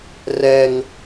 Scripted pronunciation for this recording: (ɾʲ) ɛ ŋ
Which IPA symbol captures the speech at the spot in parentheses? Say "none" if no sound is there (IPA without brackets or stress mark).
r